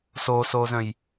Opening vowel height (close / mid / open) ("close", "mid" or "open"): mid